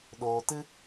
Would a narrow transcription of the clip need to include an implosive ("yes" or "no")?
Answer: yes